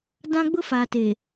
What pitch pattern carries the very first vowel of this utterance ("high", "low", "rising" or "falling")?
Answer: high